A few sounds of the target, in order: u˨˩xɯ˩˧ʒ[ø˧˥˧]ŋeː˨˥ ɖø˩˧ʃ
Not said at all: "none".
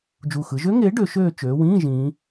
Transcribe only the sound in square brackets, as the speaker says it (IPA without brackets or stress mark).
ø˦˥